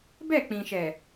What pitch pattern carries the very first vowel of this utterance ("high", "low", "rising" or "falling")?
falling